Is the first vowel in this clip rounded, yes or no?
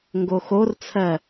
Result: yes